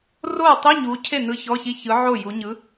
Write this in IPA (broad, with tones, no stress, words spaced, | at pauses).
roː˥˩tˤi˧˥˧ɲuː˨˦cʰe˥˩ nɯ˧˥˧çɔ˧˥˧çi˧˥˧ çɯ˨˦ ʕo˥˩ju˨˦ ɲɯ˨˦